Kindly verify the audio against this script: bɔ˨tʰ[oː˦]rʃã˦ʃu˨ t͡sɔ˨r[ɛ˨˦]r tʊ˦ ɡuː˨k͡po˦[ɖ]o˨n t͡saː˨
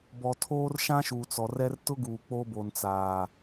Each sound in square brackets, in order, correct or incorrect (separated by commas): correct, incorrect, incorrect